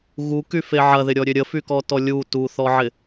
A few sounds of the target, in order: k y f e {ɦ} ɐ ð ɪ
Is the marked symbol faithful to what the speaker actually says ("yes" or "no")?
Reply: no